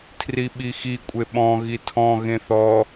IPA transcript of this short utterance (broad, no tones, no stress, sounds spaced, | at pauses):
tʰ r i ɓ i x i kʷʼ e ɓ ɔ̃ ɣ i tʰ ɔ̃ ɣ ẽ θ ɔ